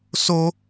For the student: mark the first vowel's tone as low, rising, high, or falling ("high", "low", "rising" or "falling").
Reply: high